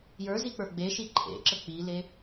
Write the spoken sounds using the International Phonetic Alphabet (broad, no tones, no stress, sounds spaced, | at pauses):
j ə˞ z i k͡p ə˞ ɡ͡b e ʃ i ǃʰ ḛ ǁ ə k͡p i l e